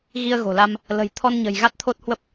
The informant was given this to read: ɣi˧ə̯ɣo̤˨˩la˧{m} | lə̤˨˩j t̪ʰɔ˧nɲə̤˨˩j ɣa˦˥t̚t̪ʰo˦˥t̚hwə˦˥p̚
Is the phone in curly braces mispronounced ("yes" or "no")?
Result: no